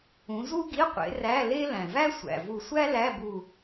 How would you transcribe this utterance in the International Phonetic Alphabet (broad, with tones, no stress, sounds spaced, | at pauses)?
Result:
ũ˨˦ z u˥ ɡ i˧˥˧ qʷ ḛ˨˦ r æ˧˥˧ l e˥ l æ̃˩ v æ˥ sʷ æ̰˩ v u˧˩ sʷ æ˥ l æ˧˥˧ b u˧˩